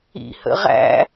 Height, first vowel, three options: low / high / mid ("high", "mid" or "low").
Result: high